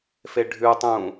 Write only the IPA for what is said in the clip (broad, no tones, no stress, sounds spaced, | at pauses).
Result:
f e ɖʱ ʉ tˤ ũː